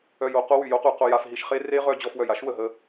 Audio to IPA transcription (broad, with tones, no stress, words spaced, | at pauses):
œ˧jo˧qo˦ wy˨jo˦qu˧ qo˧ja˧fɦi˧ʃ χe˦ re˦ʁœ˧ d͡ʑɔ˧fwœ˨j a˦ʃwə˨ɦə˦˨